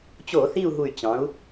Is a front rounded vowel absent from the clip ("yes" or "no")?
no